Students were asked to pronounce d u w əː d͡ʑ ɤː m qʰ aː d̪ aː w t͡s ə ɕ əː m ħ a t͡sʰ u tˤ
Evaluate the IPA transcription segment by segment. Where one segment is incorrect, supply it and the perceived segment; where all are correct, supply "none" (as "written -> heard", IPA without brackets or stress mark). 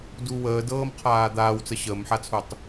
d͡ʑ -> d